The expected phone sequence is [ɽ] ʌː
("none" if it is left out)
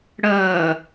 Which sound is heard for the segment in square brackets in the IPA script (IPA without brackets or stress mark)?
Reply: ɽ